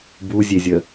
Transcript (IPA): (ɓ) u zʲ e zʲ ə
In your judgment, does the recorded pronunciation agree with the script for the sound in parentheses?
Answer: no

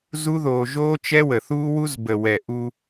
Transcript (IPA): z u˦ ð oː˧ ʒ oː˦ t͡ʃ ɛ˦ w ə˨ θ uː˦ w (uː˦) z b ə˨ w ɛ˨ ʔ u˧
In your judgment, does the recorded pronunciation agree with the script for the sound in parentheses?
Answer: no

